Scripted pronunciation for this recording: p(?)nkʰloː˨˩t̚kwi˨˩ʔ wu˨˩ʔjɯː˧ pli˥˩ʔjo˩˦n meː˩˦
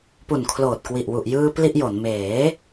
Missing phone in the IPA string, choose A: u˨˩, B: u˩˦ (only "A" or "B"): A